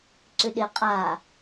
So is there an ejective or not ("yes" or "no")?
yes